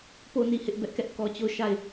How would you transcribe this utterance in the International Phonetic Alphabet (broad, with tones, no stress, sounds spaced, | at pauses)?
p o˦˨ n i˦˨ h ɪ˦ ʔ b ɛ˦ ʔ k ɛ˦ ʔ k ɔ˦ t͡ɕ o˦˨ ʊ̯ ʃ a˦˨ ɪ̯